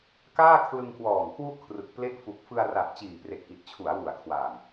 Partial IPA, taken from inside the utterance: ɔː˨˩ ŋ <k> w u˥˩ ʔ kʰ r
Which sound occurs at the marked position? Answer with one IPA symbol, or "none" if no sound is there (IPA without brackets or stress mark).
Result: k